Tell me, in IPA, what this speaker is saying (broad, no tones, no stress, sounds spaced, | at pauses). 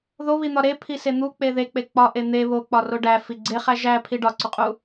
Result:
ð o β i n̪ ɒ ɾ e pʰ i s e n̪ u k͡p e ð e k͡p e k͡p ɒ ʔ e n̪ e β o k͡p ɒ r o ɖ æ f i ɡ͡ǀ e χ æ ʒ æ pʰ i ɖ ɒ ǀ u qʼ u